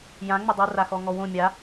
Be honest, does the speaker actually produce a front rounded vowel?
yes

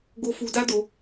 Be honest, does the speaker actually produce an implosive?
no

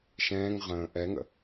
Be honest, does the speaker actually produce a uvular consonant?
yes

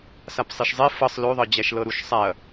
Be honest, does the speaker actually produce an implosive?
no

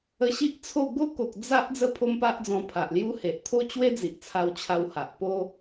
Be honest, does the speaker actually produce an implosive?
no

